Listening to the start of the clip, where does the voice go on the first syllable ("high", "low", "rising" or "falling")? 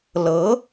rising